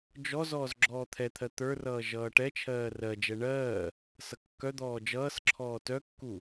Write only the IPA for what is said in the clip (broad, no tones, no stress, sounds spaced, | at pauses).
d͡ʒ ɔ z ɔː z ɡ͡ǁ ɔː t̪ʰ ɛ t̪ʰ ɜ t̪ ə˞ r ʌː ʒ ʌː ʈ ɛ t͡ʃʰ ɜː r ɜ d͡ʒ ɛ ɳ ɜː | s ʌ kː œ d̪ ɔː d͡ʒ ʌː s ǁʰ ɔː t œ kː u